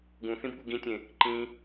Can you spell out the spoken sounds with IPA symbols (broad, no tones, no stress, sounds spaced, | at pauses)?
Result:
ɡ ũ θ ĩ b ɠ u ɡ ĩ tʲ ẽ | ǃ ĩ